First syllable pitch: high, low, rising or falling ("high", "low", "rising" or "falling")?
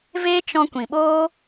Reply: high